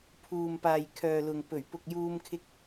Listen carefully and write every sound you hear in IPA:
pʰ uː˨ m p aː˨ j kʰ œː˨ l ʊ˨ ŋ p ɵ˨˩ ɥ p ʊ˨ k̚ j uː˧ m kʰ ɪ˨˥ k̚

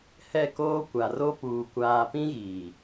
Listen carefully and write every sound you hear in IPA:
h ɛ˦˨ k oː˦ kʷ a˨ r o˦ p uː˨ kʷ aː˨ p ĩ˦ ɣ iː˨

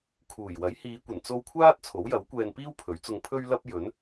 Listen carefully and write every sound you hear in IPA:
kʰ uː˨˩ j w ɐ˨˥ j h iː˨˧ kʷ ɐ˨˩ n t͡s o˧ w kʷʰ aː˥ t̚ t͡sʰ o˨˥ w j ɐ˨˥ w kʷ ɛː˧ n p iː˥ w pʰ ɵ˨˥ ɥ t͡s ʊ˧ ŋ pʰ ɵ˥ ɥ l ɐ˥ p̚ j ɵ˨˥ n

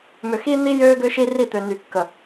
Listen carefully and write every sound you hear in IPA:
m ʏ˨ x i˦ n̪ i˦ j øː˦ ɡ ʏ˦ ʃ i˦ r i˦˨ t̪ ø˨ n y˨ kː ə˨

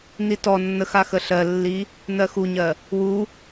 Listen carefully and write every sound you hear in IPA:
n i t ɔ nː ə x a x ə ɬ ɜ lː i | n ɜ x u ɲ ɜ | w u

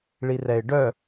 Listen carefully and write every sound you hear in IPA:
ɭ i r ɛ ɪ̯ ɖ œ

